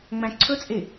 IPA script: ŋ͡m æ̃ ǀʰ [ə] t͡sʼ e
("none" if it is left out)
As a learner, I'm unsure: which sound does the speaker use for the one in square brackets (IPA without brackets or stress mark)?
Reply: ɵ